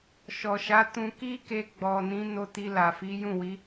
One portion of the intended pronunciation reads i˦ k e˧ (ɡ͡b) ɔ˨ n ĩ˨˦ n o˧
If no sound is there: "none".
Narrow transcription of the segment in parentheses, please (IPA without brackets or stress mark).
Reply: ɡ͡b